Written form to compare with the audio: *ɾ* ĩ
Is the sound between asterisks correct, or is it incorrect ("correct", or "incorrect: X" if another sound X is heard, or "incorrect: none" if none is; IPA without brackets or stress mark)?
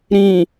correct